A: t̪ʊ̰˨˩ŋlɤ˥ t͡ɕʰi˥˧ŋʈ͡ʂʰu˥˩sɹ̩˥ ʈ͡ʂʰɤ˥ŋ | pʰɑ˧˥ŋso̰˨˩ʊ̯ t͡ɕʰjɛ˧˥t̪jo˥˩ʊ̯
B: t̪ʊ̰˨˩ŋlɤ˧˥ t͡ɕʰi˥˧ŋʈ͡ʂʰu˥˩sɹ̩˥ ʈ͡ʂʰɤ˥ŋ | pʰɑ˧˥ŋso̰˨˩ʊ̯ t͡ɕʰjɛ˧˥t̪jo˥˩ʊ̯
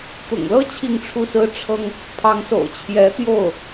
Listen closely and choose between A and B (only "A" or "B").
A